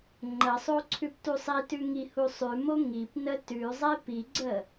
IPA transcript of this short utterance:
ŋ͡ǃ ə sˤ o ǀʰ ʉ p t u sˤ i t ʉ ŋ i h u sˤ ʉ m o ŋ i p n ə t ʉ zˤ e p i ɡ͡ǀ ə

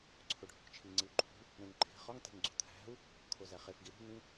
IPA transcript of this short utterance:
ǀʰ o ɖʱ o̤ k t͡ʃʰ i ŋ͡ǀ i u̯ ǃʰ ṳ | ɾ ẽ ŋ ǃʰ e̤ χ ɒ ŋ t e̤ ŋ ɡ͡ǀ ṳ t̪ʰ æ̤ u̯ | kʰ o z æ χ e f ɡ i ɾ ṳ n ĩ

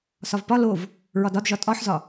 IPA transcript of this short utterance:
s ɒ v p ɒ l o v | ɹ ɒ d ɒ d ʒ ɒ tʼ ɒ ħ z ɒ

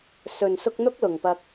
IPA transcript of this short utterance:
s ɵ˨ n s ʊ˧ k̚ n̪ ʊ˥ k̚ l ʊ˨ ŋ p ɐ˧ k̚

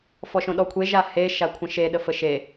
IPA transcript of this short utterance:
f ɔ ʃ õ ɗ ɔ kʷʰ e ʒ a h e ʃ a kʷʰ ə̃ ʃ e ɗ ə f ə ʃ e

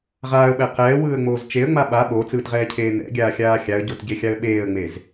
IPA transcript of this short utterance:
ʁ aː ə̯ ɓ ɛ q ɛː w ɯː ə̯ ŋ͡m oː z t͡ʃ e ə̯ ŋ͡m a ɓ a ɓ oː t͡s ɯː t ʁ ɛː cʰ eː n̪ ɛ̰ ɡʲ aː xʲ aː xʲ a ə̯ ɟ o t ɟ e xʲ a ə̯ ɓ eː ə̯ ŋ͡m e z

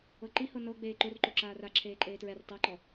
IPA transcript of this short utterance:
ɤ ǃ i h ɤ n ɤ ɡ͡b eː ǃ o r ǃ o ǁ aː r a ǁʰ eː ǃʼ eː t ɹ ɛ r tˤ a ǃ ɔ

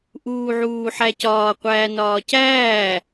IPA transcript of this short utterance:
ʔ uː ʕ uː ħ æ c ɒː qʷ æː n ɒː c æː

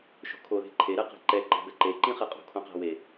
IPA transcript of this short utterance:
ʃ o̤ kʰ o ð e̤ ǃʰ e ɾ ɛ q e̤ ǃ ɛ ǃ e̤ b ɛ ǃ e ǃ ĩ χ ɛ qʼ o̤ kʰ õ q a̤ w e

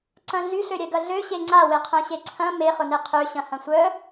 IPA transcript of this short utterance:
ǀ ɐ̃ ɮ y ɬ ø ɾʲ ɛ ɡ ɐ ɮ ø ɕ e ŋ͡ǀ a w e qʰ œ̃ ɕ e ǀʰ ɐ̃ m e χ ʊ n e qʰ ø ɕ ɐ̃ h ɐ̃ sʷ œ

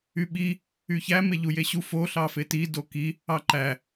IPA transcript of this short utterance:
y ɓ i | y ç æ m e ʎ u j e ɕ u f o ɬ ɑ f e t i d o k i | ɑ ǃ æ

